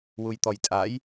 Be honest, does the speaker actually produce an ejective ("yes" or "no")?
yes